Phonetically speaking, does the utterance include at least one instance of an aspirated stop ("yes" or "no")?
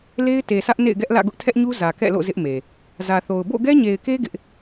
yes